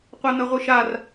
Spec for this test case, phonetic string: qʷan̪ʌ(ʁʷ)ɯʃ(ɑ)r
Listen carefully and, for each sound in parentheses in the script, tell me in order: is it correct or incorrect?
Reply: correct, incorrect

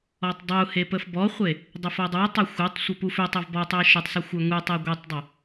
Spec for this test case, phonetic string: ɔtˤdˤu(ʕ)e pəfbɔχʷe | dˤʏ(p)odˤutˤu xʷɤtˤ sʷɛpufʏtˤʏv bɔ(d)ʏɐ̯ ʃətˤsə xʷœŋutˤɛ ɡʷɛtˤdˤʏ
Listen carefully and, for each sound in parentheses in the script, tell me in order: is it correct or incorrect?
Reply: incorrect, incorrect, incorrect

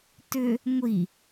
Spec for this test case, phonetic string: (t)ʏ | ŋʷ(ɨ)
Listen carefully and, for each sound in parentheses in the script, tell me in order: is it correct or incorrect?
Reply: correct, incorrect

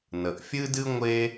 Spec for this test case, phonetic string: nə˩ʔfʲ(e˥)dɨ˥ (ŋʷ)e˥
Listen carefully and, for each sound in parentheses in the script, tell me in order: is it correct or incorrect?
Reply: incorrect, correct

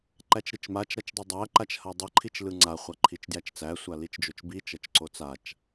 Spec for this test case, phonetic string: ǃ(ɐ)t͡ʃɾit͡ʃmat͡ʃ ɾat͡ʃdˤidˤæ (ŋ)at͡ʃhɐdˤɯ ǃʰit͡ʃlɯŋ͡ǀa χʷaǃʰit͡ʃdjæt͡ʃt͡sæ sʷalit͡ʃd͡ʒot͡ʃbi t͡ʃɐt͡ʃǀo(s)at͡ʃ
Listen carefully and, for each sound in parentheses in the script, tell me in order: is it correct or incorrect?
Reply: incorrect, incorrect, incorrect

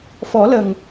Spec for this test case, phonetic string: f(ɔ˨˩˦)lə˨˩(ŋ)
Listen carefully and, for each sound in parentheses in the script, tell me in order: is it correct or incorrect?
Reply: correct, correct

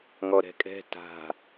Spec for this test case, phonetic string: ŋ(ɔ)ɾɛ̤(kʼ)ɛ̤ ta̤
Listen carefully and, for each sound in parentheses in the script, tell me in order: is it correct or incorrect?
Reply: correct, correct

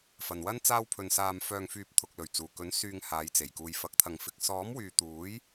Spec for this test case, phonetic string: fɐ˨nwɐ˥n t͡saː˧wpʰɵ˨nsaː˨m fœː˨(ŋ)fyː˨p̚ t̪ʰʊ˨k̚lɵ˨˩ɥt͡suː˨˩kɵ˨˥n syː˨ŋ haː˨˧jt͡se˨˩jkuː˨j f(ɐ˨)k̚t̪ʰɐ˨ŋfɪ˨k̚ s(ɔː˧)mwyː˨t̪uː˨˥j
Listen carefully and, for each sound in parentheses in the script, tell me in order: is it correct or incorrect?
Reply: correct, incorrect, incorrect

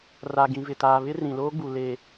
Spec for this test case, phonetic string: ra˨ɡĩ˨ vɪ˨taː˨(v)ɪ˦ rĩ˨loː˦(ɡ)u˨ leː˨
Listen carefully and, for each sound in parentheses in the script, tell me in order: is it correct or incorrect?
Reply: incorrect, incorrect

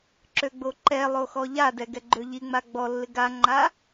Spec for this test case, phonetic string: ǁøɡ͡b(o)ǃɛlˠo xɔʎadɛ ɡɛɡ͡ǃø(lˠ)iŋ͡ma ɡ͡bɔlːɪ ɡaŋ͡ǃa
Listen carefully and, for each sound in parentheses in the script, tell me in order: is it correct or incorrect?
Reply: correct, incorrect

